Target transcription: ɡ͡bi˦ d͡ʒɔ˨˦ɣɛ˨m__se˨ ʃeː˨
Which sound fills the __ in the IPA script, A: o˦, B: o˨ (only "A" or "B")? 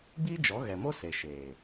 A